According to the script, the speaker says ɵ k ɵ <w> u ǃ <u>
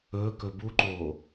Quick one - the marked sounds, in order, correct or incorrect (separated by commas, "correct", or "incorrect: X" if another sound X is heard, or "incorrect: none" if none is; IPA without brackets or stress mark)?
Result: incorrect: b, incorrect: o